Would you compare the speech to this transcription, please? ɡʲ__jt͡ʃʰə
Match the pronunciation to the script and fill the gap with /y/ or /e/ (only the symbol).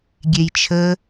e